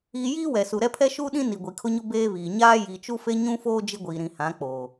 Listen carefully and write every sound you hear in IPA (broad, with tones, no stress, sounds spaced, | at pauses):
iː˦ j iː˦ w ɛ˨ s u˨ ɾ ɛ˦ pʰ ɛ˦ ʃ uː˦ ɗ ĩ˦ n i˨ ɡʷ i˨ kʰ ʊ˦ ɲ ʊ˦ b eː˦ β iː˨ ɲ aː˦ j i˨ t͡ʃ u˦ f e˦ ɲ ũ˦ f oː˦ d͡ʒ ɪ˦ ɡʷ iː˨ ɾ ĩ˨ h ã˨˦ k͡p oː˨